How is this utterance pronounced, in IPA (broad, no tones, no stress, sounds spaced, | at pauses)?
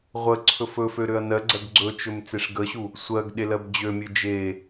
ʁʷ ə ǀʰ ɵ f ɵ f ø ɾ ø ɐ̯ n ɜ ɡ͡ǀ ɜ ɡ ɡ͡ǀ ɵ t͡ʃ ɵ m t͡s e ʂ ɡ ə ɕ u | sʷ ɜ ɡ ɗ e l ɜ b d͡ʑ ø mʲ ø d͡ʒ e